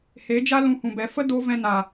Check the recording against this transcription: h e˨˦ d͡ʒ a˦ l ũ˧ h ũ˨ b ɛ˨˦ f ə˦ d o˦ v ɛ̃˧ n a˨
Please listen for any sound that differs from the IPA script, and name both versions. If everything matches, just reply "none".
none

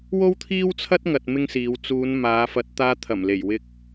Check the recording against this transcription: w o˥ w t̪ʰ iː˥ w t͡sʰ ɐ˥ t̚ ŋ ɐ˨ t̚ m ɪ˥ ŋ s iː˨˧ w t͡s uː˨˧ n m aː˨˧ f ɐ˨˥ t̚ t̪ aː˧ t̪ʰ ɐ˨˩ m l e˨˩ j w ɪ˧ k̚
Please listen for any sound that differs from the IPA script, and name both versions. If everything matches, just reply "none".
none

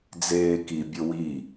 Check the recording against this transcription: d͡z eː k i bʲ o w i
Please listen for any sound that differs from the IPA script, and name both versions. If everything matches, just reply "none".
none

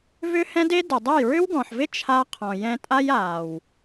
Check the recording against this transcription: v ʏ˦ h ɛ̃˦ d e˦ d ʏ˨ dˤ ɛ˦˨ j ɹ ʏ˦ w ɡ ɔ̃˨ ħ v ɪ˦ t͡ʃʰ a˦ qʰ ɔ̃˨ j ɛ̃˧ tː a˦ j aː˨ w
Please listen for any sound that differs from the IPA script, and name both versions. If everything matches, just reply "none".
tː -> tʼ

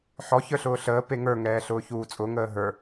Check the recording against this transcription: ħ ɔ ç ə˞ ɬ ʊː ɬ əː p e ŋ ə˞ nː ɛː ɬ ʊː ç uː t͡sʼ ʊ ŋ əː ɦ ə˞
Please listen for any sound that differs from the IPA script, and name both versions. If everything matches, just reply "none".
nː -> ŋ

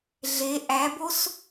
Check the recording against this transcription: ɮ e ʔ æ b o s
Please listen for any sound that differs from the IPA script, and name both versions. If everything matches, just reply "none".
none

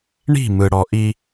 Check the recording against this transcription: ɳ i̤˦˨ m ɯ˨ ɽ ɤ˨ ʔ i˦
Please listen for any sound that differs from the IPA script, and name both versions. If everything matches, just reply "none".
ɤ˨ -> ɔ˨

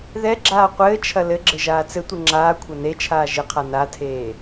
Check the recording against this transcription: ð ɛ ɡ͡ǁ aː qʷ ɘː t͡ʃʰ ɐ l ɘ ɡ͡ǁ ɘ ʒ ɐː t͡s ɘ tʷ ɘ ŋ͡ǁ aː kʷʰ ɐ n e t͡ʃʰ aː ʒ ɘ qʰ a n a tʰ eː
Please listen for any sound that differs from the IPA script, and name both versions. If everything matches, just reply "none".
ɐː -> aː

